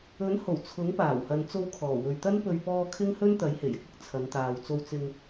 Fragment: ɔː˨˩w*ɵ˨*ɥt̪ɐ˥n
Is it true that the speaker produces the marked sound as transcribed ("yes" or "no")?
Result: yes